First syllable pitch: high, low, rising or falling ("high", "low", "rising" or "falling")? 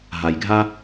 low